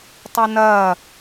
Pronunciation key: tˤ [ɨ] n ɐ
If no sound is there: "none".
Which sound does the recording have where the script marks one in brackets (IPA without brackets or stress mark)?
ɨ